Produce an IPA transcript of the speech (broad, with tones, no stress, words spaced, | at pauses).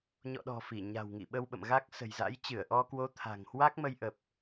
ɲɔ̰˧˨ɗɔ̤˨˩ fi˧˩ɲa̤˨˩wŋḭ˧˨ ɓə˧wɓə̰˧˨mɣa˦˥k̚ sə̤˨˩jza̰˧˥j t͡ɕɨ˧˩ə̯ʔɔ˧kwo˨˦ t̪ʰa̤˨˩ŋhwa˦˥k̚mə˧jʔə˨˩p̚